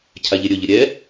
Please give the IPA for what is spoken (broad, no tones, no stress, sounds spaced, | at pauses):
cʰ a ʎ e ɾʲ ɵ ʎ ə ɾʲ ɛ